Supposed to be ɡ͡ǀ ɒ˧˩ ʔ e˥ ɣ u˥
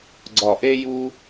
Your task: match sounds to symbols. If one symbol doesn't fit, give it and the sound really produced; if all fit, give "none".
ɣ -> j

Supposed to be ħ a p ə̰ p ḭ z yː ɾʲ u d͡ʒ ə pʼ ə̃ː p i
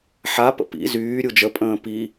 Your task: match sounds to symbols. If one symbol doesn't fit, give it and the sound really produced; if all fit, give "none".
none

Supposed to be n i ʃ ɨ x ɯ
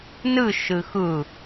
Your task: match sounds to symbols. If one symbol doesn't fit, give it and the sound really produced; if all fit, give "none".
i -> ɨ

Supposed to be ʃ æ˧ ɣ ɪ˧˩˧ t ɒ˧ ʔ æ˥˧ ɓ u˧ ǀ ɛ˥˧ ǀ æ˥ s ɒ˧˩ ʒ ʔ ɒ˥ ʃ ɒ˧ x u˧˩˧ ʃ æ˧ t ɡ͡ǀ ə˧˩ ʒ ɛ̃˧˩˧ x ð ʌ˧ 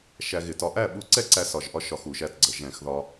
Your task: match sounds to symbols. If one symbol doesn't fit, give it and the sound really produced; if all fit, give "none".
ʌ˧ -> ɒ˧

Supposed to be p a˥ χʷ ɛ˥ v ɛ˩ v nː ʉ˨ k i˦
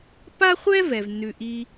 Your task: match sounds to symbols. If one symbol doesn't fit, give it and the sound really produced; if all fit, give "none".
k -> ʔ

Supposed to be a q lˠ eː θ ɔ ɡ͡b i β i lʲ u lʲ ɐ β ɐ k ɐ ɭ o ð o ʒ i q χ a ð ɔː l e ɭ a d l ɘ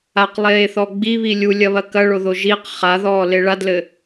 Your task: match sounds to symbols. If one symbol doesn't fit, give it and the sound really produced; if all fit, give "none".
none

